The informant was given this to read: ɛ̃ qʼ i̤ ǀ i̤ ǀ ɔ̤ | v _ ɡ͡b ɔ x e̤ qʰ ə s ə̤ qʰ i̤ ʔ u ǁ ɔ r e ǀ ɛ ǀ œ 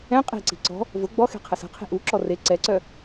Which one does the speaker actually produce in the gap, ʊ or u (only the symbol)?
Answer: ʊ